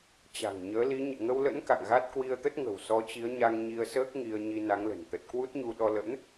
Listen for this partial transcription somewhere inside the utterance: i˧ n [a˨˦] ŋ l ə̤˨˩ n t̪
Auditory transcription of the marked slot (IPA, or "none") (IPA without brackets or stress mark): a˨˦